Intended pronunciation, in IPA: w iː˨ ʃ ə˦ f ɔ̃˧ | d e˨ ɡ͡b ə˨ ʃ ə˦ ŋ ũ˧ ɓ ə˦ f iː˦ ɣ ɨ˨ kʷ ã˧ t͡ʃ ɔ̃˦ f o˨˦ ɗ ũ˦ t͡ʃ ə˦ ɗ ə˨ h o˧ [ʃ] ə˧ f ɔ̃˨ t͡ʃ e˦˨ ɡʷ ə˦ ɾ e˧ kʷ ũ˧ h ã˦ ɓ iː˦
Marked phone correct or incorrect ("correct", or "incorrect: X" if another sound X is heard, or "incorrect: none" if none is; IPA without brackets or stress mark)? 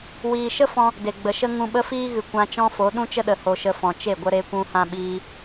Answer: correct